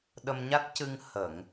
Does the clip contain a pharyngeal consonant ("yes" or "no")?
no